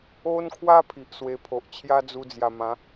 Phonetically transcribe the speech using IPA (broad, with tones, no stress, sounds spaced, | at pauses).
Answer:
o˦ n kʰ w a˦ pʰ i˨ ʔ s w e˧ pʰ o˨ ʔ t͡ɕʰ j a˦ d͡z u˧ d͡z j a˨˩ m ã˨˦